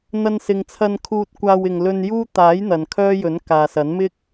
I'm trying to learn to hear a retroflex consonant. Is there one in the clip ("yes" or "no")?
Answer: no